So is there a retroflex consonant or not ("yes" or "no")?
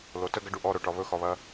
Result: yes